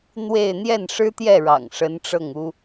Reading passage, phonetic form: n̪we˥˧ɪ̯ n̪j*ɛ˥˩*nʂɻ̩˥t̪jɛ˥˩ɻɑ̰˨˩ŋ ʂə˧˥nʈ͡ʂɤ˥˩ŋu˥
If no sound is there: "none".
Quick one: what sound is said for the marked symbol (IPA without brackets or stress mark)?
ɛ˥˩